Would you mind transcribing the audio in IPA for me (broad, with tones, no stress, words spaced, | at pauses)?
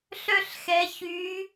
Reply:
ɬœ˥˧ɬxɛ˧˥çy˧˥